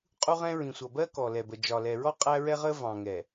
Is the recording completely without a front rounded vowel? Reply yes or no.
yes